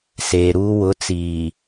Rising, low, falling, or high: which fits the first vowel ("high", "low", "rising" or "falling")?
low